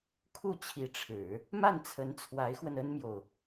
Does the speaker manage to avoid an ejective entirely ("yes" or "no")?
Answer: yes